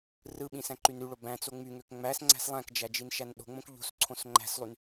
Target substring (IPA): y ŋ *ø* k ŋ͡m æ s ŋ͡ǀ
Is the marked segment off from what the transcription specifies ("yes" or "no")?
no